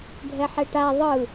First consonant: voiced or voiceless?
voiced